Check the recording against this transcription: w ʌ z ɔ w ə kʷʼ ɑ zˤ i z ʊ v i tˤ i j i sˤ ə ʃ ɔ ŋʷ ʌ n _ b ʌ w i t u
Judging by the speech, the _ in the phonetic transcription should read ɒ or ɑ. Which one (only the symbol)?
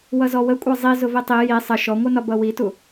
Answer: ɒ